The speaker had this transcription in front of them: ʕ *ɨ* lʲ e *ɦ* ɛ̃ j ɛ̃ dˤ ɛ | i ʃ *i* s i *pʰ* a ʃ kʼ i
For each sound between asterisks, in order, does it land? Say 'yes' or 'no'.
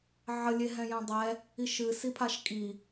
no, yes, no, yes

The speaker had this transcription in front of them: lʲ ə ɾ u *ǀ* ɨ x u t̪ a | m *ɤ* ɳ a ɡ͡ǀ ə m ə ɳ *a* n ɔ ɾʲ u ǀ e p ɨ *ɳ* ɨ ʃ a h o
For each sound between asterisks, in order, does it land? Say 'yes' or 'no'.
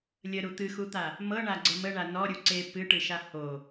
no, yes, yes, no

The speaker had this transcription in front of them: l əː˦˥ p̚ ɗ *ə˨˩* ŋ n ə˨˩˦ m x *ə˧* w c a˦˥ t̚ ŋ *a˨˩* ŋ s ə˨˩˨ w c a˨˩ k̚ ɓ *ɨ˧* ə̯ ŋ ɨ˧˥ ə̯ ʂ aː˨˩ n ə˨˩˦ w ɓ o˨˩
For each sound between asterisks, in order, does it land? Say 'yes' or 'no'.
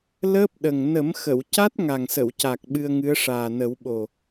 yes, no, yes, yes

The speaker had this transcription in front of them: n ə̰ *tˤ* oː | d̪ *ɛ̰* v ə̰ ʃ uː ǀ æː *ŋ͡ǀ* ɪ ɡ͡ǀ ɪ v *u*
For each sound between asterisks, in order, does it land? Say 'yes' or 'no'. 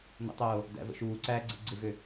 yes, no, no, no

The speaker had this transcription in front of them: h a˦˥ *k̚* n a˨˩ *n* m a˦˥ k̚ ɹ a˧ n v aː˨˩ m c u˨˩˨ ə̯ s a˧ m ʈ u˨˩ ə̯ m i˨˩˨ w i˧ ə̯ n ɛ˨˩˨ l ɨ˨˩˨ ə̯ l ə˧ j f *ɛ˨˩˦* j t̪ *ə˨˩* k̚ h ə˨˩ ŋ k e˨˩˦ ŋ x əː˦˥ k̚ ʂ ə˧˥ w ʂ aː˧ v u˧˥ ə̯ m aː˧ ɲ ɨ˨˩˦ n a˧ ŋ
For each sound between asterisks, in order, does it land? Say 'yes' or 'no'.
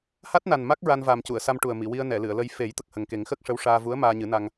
no, yes, no, yes

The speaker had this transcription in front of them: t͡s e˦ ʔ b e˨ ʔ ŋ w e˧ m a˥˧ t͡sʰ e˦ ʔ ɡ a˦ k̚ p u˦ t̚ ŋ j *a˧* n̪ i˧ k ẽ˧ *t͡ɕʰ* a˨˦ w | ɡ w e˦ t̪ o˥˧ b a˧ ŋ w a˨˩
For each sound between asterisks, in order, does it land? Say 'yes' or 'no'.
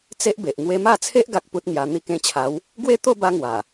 yes, yes

